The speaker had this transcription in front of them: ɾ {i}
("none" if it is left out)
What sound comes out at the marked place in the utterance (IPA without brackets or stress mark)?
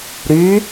y